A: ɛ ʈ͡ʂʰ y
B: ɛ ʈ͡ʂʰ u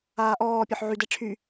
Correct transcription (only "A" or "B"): A